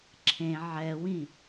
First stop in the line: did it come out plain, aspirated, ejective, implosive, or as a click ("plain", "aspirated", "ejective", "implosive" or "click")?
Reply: click